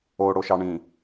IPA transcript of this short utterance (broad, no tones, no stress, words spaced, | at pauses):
oɽoʃɑɳĩ